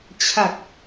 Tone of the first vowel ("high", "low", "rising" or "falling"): low